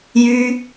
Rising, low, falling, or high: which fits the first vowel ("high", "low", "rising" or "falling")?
high